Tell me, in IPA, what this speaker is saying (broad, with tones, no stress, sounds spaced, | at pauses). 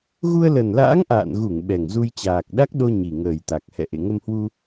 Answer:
ɣ u˧ ə̯ l ə˨˩ n l a̰ː˧˥ ŋ ʔ a̰ː˧˨ n ɣ u˧˩ ŋ ɓ ɛ˨˩ ŋ z u˧ j t͡ɕ aː˨˩ k̚ ɗ a˦˥ k̚ ɗ o˧ ɲ i˨˩ ŋ əː˨˩ j t̪ a˨˩ k̚ h ɛ̰˧˨ ʔ ḛ˧˨ ŋ ə˧ m h w u˧